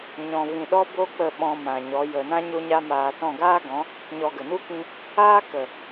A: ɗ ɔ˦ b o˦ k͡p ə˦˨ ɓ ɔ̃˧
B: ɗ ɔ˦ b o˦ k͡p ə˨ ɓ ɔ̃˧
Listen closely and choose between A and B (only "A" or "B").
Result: A